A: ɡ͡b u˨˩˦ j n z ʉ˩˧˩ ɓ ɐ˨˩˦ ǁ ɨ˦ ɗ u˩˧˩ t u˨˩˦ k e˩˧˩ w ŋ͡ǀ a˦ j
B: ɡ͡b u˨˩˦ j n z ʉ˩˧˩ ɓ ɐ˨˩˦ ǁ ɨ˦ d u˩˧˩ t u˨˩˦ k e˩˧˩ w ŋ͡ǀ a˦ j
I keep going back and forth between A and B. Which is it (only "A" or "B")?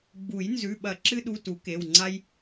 A